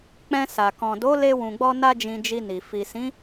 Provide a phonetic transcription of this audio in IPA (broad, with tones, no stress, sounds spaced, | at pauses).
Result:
k͡p ɛ̃˧ s a˨ k ɔ̃˨ d o˨˦ l e˧ w ũ˨ ɡ͡b ɔ˧ n a˦ d͡ʒ ĩ˧ d͡ʒ i˧ n i˨ f i˨ s ĩ˨˦